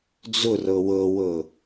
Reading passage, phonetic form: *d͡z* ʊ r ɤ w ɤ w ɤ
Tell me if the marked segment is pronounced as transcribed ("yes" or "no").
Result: yes